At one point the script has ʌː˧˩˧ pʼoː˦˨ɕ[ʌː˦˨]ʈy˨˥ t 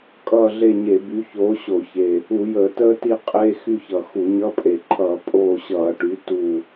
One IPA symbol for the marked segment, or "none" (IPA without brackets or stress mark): ʌː˧˩˧